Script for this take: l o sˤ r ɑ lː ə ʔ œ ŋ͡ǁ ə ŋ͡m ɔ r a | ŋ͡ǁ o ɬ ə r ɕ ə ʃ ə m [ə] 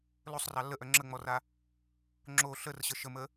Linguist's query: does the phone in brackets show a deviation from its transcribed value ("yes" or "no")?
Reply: no